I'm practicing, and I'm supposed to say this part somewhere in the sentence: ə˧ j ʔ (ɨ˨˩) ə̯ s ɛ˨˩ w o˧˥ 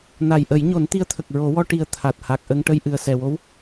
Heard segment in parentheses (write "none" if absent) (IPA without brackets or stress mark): ɨ˨˩